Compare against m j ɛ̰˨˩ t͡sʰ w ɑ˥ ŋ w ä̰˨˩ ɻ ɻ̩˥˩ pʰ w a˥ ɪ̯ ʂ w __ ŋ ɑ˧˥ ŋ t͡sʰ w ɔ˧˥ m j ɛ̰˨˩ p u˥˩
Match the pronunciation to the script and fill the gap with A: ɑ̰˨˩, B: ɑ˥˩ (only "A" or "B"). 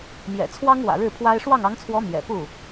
B